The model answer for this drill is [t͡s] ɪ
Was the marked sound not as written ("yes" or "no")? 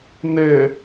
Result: yes